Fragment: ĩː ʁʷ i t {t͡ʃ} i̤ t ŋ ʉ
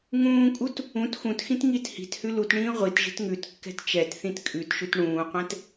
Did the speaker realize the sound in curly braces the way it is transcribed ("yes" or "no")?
no